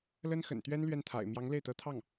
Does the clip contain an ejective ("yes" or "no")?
no